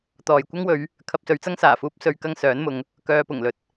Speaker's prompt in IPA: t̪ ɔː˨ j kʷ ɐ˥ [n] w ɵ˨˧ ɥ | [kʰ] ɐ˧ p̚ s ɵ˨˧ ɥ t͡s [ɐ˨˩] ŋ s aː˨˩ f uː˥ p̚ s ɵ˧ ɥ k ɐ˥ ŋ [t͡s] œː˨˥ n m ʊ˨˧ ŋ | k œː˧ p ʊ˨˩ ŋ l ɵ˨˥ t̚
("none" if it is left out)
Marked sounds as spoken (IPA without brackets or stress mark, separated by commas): ŋ, kʰ, ɐ˥, s